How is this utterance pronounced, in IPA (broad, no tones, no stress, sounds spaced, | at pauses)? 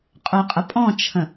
qʼ œ qʼ ə pʼ ɔ̃ t͡ʃʰ ə̃